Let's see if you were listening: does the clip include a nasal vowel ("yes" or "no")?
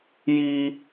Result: no